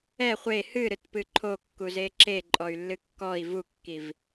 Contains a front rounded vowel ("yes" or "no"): yes